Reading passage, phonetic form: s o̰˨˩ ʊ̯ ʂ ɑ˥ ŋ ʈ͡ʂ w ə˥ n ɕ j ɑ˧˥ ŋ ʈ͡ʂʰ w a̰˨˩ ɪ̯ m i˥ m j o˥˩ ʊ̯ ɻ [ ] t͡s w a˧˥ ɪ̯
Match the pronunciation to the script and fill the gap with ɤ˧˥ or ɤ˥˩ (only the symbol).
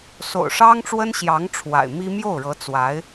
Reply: ɤ˧˥